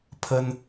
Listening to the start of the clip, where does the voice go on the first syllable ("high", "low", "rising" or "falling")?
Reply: high